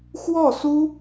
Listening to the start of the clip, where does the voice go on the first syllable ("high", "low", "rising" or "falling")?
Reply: falling